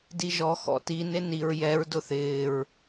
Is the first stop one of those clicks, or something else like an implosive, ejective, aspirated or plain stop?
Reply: plain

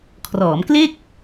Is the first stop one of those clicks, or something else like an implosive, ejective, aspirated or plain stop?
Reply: aspirated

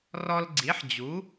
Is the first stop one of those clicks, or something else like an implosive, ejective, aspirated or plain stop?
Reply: click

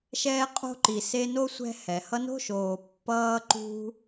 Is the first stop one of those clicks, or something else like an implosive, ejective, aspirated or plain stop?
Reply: ejective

